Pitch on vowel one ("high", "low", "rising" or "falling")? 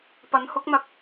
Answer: rising